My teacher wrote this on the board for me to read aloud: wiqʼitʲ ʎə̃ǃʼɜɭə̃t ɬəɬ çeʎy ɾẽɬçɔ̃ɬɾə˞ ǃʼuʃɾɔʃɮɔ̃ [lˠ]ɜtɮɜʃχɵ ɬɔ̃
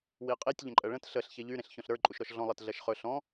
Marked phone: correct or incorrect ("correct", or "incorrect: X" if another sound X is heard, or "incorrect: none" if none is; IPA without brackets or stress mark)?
correct